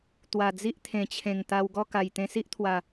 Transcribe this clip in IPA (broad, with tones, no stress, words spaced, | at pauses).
t̪wa˨˩d͡zi˦ʔt̪ʰẽ˨˩t͡ɕʰẽ˨˩ŋ t̪a˧wɡɔ˥˧ka˨˩j t̪ẽ˧si˦ʔt̪ʰwa˨˩